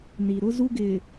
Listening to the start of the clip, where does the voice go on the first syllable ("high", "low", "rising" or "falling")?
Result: low